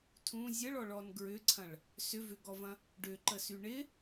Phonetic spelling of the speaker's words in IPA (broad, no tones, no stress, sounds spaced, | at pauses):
tʰ ũ zʲ ə ɭ ɔ ɭ ɔ n ɡ ɹ ʏ ǀʰ ɐ̃ ɭ | s ʏ v ʏ ɡ ɔ v ɐ̃ | ɖ ʏ ǃ ə s y ɳ ɪ